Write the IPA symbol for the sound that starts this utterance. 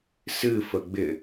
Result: s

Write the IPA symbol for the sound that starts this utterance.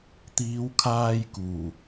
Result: t̪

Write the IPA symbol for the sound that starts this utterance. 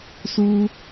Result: s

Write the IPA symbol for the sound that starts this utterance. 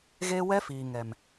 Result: ɣ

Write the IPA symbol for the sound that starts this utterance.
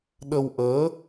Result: ɗ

